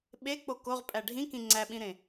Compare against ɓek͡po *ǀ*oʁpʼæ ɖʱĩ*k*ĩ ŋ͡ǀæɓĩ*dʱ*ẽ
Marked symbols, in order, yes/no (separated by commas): no, yes, no